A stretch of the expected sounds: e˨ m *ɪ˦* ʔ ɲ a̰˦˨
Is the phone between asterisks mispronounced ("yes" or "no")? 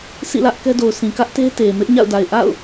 no